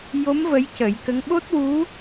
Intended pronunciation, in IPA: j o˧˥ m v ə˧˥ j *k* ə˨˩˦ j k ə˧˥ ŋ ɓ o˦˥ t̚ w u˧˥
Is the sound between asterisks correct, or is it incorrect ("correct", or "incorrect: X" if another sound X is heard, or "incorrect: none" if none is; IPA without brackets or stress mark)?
incorrect: c